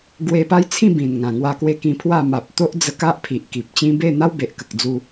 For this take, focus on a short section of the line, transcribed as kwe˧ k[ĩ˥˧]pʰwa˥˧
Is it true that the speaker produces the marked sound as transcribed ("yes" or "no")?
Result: no